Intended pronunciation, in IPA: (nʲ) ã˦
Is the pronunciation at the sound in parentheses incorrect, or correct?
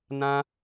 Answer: incorrect